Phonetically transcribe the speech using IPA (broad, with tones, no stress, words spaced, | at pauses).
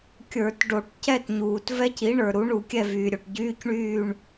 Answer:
kʲə˞˧˩˧tɖo˧˩˧ʈ cɛ˥˨tɲuː˩t vɛ˦˥ci˩˥ ɳə˞˩ɾu˩˥ɳu˧˩˧ kʲɛ˥˨vyː˩ɾʲo˩ʈ ɟyː˧˥˧cɳyː˥˨ɳ